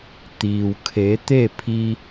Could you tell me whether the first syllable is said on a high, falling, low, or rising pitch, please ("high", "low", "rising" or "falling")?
low